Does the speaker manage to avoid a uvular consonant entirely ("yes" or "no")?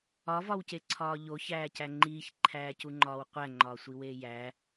no